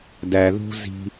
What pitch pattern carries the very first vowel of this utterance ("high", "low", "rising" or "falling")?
low